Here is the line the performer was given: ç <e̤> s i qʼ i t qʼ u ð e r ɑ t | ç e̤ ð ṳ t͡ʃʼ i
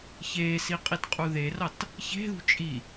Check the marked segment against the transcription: incorrect: e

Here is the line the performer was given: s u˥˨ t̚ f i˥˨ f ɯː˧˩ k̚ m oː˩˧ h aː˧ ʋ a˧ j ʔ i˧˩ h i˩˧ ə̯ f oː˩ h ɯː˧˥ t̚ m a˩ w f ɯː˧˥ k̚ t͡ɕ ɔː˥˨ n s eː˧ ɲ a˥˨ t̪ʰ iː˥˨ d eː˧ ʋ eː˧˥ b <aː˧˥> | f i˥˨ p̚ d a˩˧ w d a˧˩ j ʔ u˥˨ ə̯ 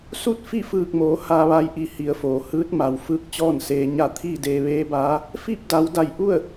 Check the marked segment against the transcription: correct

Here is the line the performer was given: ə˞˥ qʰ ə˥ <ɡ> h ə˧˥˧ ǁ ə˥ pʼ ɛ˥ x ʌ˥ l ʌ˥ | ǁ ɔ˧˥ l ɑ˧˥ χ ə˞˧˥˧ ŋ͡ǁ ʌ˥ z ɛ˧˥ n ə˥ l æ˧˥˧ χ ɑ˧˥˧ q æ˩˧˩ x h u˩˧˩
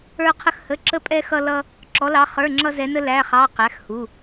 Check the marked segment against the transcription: incorrect: x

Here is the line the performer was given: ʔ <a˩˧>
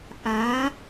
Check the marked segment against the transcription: correct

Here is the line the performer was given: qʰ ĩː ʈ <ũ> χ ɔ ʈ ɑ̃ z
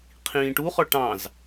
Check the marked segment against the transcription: incorrect: u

